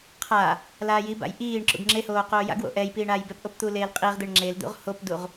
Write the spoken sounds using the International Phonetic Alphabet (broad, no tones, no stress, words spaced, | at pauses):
qʰa | laːjiba̰j ʔiːɳ ǁṵɡŋ͡ǁehoː qoːja̰ɡwo̰ ʔɛj piːɳaːjbɛpʔop t̪uleːlqʼiʁd̪eɳ ŋ͡ǁeld̪ṵʁ hopduʁ